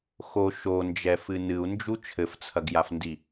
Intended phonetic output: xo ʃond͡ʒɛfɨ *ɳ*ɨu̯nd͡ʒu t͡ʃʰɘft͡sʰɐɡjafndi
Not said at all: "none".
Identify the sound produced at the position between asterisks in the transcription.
n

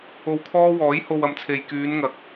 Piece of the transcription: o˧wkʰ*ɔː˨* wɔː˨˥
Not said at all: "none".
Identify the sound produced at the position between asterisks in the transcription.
ɔː˥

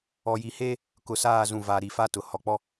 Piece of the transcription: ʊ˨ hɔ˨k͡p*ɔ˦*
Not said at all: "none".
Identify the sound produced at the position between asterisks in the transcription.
ɔ˦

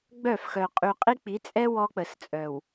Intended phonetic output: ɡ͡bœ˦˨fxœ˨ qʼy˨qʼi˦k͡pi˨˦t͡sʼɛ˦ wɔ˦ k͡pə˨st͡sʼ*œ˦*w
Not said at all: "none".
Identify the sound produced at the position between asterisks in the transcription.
œ˨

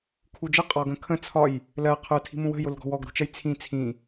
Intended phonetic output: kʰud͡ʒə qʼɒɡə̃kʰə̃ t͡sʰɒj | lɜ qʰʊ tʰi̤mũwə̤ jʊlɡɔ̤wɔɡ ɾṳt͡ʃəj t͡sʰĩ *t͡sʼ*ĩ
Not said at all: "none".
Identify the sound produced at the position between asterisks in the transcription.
t͡sʰ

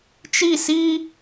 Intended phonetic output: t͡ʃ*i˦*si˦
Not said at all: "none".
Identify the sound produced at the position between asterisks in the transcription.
i˦˨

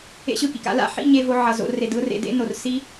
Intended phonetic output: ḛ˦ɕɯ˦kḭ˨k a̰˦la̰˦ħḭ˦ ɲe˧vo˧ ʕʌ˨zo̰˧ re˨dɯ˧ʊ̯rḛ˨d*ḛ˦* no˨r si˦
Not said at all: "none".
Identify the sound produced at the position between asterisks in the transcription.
ḛ˨˦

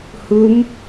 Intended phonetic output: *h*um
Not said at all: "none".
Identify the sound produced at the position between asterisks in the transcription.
h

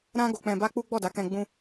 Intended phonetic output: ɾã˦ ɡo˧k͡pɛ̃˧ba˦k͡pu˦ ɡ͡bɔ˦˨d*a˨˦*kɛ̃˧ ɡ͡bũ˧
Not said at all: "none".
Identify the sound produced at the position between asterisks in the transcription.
a˨˦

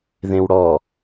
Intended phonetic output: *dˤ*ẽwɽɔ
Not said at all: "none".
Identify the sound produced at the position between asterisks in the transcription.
ð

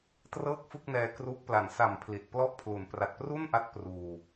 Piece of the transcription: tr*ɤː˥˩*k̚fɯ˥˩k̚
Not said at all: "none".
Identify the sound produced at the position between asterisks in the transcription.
ɤː˥˩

